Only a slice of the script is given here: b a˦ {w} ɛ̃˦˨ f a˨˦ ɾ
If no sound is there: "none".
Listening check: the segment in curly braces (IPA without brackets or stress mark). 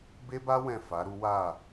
w